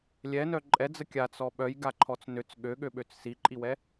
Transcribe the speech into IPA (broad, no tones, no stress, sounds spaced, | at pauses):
lʲ ɛ n œ ǃʼ ɛ d͡z ə kʲ a t͡s ɔ ɓ œ j ɡ a ǃʰ ɔ t͡s n ø t͡s ɠ ø ɠ ø ɓ ø t͡s s i ǃʼ i w ɛ